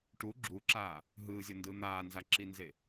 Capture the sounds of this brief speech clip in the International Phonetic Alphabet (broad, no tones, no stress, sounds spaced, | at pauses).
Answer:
ʈ u ɡ͡ǁ u ǁ aː | ɦ ɯː zʲ ʌ n d ɯ n̪ aː n z a ǁ i n z e